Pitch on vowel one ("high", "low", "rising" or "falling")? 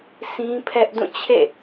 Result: high